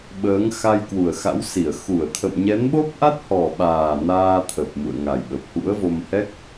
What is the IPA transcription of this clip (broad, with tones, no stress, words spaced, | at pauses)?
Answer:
ɓəː˨˦ŋ xa˧jkwu˨˩ə̯xa̰˧˥wsi˧˩ə̯ xu˧˩ə̯t̪ʰə̰˧˨mɲɛ˨˦nɓo˦˥p̚ ʔa˦˥t̚hɔ˨˩ɓaː˨˩ naː˧t̪ʰə˨˩p̚ mṵ˧˨ə̯ŋa˨˩jɓə˨˩p̚ hṵ˧˥ə̯vo˧mhɛ˦˥k̚